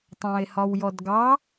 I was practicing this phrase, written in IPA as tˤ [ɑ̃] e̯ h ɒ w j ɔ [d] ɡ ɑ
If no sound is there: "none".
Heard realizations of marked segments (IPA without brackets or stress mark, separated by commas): ɑ̃, d